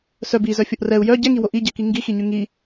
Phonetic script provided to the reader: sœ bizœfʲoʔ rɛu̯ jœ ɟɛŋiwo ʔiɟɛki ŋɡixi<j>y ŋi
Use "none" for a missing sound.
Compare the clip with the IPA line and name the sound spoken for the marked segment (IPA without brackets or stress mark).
ɲ